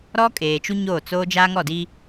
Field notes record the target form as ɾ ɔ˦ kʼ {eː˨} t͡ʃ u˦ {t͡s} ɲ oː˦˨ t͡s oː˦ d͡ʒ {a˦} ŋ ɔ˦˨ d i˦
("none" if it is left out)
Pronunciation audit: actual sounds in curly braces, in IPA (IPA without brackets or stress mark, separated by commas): eː˨, none, a˦